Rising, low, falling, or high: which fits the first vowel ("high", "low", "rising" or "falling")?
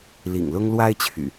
low